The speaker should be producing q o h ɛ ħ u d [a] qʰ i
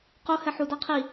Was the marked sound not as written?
no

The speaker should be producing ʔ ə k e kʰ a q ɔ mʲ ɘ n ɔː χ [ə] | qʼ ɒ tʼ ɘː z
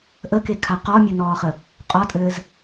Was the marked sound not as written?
no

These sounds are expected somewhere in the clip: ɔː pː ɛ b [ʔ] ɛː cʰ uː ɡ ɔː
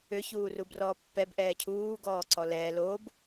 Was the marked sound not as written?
no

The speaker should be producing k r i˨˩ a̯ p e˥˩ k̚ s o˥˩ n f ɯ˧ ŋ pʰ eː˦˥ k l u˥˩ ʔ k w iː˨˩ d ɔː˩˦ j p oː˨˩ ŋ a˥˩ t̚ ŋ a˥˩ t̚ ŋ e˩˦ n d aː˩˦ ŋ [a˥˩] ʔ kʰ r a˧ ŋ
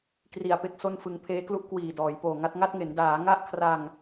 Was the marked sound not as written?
no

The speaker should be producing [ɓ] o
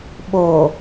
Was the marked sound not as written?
no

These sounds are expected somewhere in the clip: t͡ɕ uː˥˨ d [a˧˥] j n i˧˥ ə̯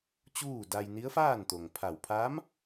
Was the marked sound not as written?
yes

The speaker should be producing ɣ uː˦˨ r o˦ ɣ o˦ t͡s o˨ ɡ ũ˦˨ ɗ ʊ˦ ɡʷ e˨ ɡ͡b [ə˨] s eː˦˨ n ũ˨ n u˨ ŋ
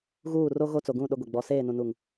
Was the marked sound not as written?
yes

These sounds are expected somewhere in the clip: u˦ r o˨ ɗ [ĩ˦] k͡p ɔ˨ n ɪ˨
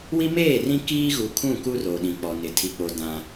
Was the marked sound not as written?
yes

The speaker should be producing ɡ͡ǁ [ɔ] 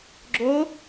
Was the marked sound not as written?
yes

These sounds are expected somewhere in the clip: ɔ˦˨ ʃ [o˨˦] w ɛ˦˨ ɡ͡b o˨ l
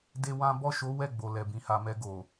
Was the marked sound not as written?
no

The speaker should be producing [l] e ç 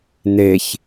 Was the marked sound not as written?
yes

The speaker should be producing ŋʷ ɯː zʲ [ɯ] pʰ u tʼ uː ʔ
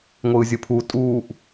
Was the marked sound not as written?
no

